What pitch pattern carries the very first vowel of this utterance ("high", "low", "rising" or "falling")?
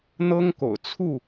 high